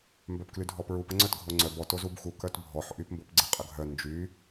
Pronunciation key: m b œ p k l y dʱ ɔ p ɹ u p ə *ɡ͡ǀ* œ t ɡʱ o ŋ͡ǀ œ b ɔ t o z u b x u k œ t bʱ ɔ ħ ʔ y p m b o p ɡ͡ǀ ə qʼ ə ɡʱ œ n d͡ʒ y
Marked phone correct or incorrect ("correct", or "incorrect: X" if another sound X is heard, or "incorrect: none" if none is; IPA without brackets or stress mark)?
incorrect: ŋ͡ǀ